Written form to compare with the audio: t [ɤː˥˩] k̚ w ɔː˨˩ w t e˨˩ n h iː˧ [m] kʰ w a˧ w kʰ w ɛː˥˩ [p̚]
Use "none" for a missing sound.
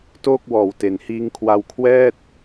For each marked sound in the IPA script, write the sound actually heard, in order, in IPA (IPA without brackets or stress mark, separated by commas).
oː˥˩, ŋ, t̚